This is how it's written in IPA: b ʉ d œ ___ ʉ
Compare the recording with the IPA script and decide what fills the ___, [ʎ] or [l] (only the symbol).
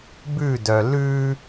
l